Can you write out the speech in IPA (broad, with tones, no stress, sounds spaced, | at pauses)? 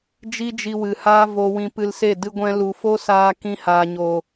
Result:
d͡ʒ i˦ d͡ʒ i˧ w ɨ˨ h aː˦ v o˧ w ĩ˧ p ɨ˧ l s e˦˨ d ɨ˧ ɡʷ ɛ̃˧ l u˨ f o˦ s aː˧ k ĩ˧ h aː˨ ɲ o˨